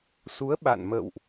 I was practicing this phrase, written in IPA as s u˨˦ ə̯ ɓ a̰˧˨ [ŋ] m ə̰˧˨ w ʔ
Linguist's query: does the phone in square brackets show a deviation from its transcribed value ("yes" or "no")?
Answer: yes